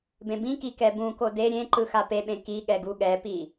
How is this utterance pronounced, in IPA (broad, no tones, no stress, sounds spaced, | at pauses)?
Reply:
b ẽ b ĩ k i k ɛ b ũ k o d e ɾʲ ẽ ǃ ɯ x a p e ɓ ẽ k i ɠ ɛ ɡ u ɠ ɛ p i